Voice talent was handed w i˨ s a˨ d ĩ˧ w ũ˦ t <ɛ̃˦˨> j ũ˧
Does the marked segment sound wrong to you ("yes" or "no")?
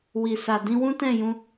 no